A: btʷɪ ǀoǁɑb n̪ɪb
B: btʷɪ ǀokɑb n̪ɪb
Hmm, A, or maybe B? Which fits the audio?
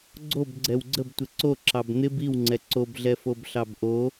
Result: A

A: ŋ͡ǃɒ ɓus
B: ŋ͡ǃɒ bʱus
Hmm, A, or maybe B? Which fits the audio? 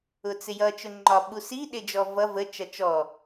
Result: A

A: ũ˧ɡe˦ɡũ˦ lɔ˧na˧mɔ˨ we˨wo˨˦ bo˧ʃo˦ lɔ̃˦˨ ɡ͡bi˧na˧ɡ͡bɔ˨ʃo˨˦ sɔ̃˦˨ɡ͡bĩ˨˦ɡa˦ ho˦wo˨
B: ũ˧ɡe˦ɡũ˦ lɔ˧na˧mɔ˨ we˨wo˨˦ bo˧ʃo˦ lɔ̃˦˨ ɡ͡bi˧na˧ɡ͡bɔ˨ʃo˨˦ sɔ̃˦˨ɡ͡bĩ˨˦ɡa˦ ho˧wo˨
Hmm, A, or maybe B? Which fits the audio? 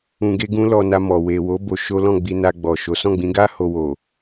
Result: B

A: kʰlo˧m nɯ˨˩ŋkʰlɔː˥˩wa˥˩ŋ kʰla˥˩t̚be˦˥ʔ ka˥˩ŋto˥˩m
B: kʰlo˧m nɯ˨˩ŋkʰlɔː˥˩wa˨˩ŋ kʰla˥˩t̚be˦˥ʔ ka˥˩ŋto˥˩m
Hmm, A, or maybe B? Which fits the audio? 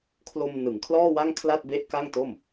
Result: A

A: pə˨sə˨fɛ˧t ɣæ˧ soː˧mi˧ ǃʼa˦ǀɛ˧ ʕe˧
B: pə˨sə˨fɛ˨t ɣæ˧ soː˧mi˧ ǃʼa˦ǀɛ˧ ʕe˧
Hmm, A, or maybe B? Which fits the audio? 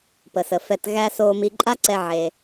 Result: A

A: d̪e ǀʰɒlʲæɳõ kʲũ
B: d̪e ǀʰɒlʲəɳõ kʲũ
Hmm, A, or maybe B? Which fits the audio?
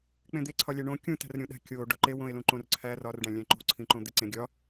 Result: A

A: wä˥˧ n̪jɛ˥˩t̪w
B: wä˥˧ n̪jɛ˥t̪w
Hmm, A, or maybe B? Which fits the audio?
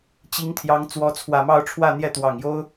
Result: A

